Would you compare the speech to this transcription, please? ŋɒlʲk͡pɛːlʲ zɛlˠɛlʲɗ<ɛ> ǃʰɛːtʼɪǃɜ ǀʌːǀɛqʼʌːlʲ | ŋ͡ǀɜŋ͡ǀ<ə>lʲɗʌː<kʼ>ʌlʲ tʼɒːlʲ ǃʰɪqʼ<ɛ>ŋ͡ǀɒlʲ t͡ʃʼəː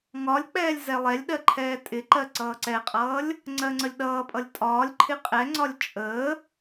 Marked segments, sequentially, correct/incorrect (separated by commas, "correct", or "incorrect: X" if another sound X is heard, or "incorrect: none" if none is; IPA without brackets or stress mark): incorrect: ɜ, correct, incorrect: pʼ, correct